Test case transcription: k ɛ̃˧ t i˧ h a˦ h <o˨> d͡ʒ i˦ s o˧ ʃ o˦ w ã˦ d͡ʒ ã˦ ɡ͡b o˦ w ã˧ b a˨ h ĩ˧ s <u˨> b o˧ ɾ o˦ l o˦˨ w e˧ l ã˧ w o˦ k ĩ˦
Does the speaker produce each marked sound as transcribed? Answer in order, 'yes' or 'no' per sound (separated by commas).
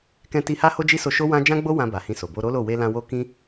no, no